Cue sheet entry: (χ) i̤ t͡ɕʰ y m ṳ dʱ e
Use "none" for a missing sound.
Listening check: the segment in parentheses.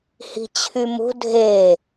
h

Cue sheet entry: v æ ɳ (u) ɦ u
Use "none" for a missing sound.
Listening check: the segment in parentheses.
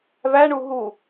u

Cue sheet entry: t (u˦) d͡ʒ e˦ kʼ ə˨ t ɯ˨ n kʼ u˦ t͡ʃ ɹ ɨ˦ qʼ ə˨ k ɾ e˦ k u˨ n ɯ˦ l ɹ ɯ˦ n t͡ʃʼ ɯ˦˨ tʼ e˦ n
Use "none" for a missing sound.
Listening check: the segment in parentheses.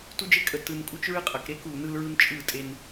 u˦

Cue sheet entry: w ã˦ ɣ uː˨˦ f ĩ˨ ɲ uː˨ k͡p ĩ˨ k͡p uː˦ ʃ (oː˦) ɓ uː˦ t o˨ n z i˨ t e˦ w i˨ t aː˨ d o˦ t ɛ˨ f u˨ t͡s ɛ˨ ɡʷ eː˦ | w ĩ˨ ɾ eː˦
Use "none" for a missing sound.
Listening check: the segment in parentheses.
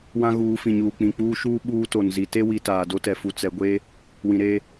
uː˦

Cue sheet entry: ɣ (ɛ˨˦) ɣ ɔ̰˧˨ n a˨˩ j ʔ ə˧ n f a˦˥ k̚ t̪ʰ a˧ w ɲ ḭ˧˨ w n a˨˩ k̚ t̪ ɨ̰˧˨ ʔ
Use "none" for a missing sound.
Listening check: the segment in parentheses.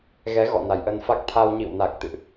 ɛ˨˦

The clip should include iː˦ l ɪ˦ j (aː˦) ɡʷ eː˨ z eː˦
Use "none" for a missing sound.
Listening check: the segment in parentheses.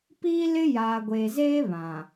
aː˨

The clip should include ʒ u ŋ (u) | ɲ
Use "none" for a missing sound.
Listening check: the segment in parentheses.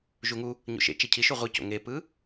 u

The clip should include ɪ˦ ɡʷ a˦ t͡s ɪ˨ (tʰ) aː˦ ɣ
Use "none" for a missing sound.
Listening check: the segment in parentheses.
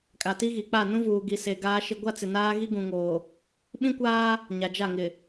n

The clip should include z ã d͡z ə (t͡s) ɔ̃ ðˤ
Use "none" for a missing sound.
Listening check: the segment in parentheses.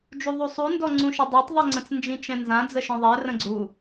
ʃ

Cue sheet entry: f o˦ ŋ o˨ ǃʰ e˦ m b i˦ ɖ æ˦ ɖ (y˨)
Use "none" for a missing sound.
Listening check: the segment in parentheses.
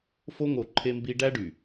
y˨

